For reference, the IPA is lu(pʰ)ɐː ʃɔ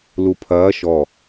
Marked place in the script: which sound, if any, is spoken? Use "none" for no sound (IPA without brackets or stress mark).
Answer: pʰ